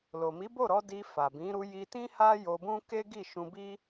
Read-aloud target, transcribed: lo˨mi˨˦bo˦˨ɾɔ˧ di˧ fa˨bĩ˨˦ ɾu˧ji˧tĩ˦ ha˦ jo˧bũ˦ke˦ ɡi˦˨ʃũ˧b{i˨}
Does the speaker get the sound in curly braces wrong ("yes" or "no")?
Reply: yes